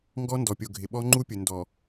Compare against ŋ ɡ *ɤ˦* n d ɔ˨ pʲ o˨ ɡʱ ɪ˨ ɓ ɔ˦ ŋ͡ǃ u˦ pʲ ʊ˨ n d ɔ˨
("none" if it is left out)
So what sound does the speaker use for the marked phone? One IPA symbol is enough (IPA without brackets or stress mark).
ɔ˦